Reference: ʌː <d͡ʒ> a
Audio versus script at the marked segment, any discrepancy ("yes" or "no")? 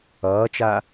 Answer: yes